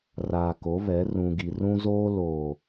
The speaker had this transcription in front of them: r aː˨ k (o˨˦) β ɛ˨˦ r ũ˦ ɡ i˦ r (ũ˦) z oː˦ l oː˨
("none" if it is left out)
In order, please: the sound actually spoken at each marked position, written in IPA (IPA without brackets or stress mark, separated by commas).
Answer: o˨˦, ũ˦